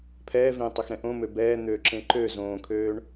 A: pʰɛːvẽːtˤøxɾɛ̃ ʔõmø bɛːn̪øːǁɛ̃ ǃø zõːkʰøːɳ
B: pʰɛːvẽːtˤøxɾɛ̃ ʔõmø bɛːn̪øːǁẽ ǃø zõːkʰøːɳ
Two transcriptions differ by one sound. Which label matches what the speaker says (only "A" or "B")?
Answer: B